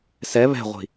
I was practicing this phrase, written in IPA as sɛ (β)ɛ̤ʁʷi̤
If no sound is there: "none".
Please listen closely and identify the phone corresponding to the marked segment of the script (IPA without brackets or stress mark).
β